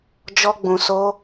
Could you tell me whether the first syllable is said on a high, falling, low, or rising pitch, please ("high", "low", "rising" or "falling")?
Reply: high